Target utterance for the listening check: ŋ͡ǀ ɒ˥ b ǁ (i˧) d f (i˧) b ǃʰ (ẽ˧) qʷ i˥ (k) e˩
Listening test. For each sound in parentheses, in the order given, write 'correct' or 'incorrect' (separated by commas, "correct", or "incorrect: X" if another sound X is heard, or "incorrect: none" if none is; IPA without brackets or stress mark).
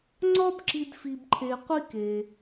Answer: correct, correct, incorrect: e˧, correct